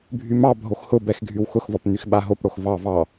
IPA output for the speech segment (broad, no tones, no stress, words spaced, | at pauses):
bʱymɑbʱox hʊbɛx ɡʱywxʊxvɒp nyxɓaɦopɽox vɑ vɑ